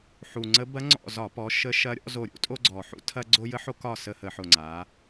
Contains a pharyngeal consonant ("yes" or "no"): yes